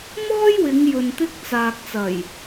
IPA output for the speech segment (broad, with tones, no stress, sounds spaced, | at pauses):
m ɔː˥ j w ɪ˨˧ ŋ j ɵ˧ n t̪ ɪ˥ k̚ t͡s aː˨ k̚ t͡s ɐ˨˩ j